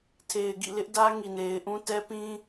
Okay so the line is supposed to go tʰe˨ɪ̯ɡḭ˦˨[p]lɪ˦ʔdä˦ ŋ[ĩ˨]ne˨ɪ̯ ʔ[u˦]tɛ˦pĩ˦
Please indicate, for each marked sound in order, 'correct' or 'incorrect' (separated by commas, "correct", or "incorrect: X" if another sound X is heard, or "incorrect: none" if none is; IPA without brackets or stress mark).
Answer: incorrect: none, incorrect: i˨, incorrect: ũ˦